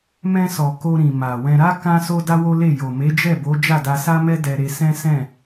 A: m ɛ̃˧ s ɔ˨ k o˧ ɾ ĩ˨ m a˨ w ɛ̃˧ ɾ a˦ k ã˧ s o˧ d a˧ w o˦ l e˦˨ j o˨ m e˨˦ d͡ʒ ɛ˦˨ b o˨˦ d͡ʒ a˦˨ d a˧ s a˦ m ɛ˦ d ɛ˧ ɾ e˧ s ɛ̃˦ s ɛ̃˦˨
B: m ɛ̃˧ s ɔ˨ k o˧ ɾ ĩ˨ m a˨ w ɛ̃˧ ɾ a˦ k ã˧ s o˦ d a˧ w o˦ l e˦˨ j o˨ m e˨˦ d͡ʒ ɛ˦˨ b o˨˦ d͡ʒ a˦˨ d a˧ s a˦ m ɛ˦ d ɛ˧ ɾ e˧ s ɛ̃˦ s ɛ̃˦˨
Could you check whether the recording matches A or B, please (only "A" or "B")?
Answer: A